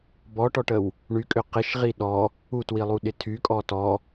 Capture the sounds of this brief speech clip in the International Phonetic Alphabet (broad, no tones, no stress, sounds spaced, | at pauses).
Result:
b ɔ ʈ ɔ ʈ ə w | ɳ y kʼ ʏ q ɪ ʃ ʁ i ɗ ɔ | u t w i lˠ u ɗ ɪ tʰ y kʼ ɔ t ɔ